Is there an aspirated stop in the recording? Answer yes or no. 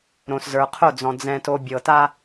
yes